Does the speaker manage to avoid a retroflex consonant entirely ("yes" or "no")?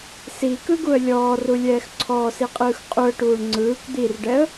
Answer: no